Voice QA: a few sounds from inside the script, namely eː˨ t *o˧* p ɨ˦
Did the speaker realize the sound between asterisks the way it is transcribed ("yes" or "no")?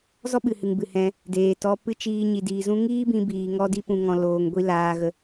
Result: no